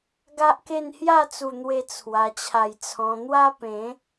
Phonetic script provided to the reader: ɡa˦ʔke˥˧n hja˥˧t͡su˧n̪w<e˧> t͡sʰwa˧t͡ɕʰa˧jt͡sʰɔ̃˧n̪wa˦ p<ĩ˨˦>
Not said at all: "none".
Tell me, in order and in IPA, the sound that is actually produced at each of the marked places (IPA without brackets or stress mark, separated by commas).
e˧, ẽ˨˦